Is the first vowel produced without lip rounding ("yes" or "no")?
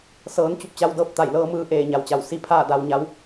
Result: yes